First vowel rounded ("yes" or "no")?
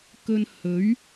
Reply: yes